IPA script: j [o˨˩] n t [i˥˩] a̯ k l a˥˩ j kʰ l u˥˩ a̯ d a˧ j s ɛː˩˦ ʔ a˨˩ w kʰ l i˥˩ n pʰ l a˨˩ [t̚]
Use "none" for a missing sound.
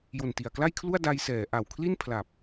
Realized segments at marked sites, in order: o˨˩, i˨˩, p̚

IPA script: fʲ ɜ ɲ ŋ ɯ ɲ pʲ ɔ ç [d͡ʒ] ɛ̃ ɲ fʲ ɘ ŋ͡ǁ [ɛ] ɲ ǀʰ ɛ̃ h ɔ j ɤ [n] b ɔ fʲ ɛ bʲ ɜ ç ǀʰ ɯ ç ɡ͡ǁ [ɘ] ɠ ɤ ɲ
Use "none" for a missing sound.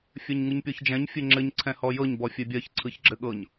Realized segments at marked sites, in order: d͡ʒ, ɘ, ɲ, ɘ

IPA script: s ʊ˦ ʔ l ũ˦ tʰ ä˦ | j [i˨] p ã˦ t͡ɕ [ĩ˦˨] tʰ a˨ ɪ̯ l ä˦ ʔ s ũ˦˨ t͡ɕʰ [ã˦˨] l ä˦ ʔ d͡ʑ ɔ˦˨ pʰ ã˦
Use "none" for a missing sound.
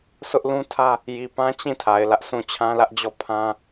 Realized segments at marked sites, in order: i˨, ĩ˦˨, ã˦

